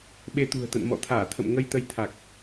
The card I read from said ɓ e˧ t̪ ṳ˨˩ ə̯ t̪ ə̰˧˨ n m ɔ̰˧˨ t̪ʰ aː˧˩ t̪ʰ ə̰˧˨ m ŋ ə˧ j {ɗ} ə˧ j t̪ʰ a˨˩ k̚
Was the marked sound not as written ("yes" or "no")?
yes